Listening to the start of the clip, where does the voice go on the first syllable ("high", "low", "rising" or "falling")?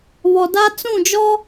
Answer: low